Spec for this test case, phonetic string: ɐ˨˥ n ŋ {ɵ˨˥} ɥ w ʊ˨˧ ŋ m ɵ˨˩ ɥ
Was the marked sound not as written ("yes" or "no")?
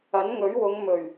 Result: no